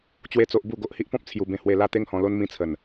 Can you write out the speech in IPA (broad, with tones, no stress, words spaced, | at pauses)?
t͡ɕwe˦t͡so˦ʔ bu˥˧ ɡo˦ʔ hi˦ʔpɔ̃˦p̚ t͡sʰju˧bẽ˧hwe˧la˦ t̪e˦ŋhɔ̃˧lo˦n mĩ˧t͡sʰə˨˩n